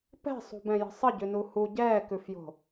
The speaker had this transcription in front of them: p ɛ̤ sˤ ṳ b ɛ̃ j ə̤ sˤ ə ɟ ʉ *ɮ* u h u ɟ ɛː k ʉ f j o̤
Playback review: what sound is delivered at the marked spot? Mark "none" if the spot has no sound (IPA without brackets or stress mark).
n